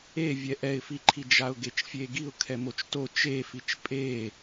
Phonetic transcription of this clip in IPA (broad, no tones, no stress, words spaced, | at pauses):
e vʲɛʔɛɪ̯fiǃʰi d͡ʒaʊ̯ɡet͡ʃfʲeɡiʊ̯ kʰɛmot͡ʃto t͡ʃefit͡ʃ pʼe